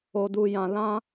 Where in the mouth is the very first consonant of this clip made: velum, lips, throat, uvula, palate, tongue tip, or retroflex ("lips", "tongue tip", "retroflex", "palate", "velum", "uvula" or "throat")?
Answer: tongue tip